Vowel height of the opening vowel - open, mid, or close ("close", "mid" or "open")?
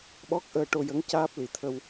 mid